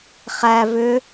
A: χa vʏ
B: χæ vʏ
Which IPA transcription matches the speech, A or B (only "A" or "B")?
B